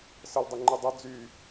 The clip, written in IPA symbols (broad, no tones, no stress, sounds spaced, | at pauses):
s ə l dˤ ɨ ŋ͡ǃ ɨ dˤ ɨ d͡z y